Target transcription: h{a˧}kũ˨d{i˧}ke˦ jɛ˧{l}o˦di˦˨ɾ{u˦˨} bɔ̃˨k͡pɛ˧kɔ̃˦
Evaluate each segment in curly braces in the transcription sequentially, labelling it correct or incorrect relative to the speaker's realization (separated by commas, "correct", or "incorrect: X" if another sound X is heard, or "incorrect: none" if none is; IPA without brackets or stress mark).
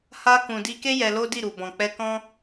correct, correct, correct, incorrect: u˨